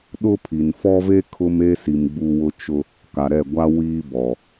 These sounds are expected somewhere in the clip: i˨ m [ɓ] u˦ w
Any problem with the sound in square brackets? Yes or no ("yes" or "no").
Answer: yes